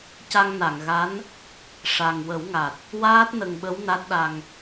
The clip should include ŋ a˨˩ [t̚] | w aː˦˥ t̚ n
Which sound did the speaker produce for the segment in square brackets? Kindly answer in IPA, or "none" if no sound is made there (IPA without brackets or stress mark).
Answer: t̚